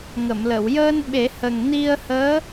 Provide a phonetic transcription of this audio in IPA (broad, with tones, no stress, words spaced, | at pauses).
ŋə˨˩˨mlə˨˩˨w jəː˧n ɓe˨˩˦hə˨˩ŋ ni˧ə̯həː˧˥